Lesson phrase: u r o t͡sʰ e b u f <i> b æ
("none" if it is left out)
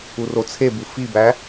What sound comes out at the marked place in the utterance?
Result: i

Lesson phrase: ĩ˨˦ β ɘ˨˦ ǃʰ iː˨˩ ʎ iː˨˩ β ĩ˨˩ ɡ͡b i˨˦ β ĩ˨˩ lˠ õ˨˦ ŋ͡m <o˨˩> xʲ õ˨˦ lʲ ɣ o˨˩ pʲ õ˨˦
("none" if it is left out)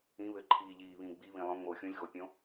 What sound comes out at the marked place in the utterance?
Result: o˨˩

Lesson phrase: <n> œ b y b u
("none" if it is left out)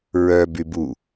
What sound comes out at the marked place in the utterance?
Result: ɹ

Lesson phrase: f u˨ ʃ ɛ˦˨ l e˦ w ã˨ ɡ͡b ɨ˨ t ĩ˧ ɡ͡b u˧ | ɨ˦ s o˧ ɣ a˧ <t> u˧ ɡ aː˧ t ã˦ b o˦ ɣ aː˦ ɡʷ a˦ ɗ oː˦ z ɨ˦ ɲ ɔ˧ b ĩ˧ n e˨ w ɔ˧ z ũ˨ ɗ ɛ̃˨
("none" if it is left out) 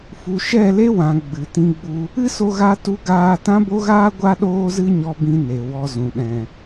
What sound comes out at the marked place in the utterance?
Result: t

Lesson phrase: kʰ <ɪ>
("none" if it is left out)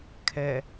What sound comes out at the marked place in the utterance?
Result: ɛ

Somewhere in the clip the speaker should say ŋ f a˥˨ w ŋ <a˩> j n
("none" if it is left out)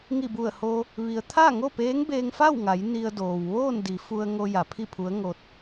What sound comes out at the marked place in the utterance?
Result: a˩˧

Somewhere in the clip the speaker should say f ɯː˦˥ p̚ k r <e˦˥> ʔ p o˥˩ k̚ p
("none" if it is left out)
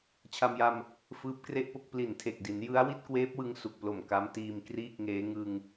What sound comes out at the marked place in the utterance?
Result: e˥˩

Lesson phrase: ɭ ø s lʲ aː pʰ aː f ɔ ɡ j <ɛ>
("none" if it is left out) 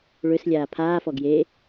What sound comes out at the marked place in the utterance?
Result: e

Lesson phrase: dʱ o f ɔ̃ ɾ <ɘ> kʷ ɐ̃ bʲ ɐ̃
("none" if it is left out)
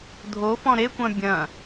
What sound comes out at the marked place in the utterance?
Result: e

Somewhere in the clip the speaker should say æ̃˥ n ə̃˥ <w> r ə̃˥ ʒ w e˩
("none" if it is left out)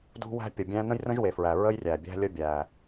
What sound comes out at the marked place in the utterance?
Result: j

